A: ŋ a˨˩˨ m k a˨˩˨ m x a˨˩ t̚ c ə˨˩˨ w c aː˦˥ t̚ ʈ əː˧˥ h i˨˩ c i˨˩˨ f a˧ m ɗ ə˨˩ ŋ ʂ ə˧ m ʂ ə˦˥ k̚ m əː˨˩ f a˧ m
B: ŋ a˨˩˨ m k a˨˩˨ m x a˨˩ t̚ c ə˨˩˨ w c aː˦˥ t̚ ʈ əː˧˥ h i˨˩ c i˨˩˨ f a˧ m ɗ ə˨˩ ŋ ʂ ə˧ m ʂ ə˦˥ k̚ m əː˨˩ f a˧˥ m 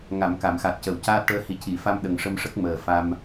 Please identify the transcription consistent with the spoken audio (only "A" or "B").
A